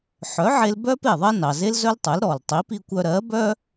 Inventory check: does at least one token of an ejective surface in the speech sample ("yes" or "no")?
no